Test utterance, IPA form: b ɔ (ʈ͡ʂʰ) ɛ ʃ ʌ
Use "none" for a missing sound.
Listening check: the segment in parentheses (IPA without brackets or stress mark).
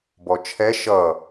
t͡ʃʰ